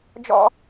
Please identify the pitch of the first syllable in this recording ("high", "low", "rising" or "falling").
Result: high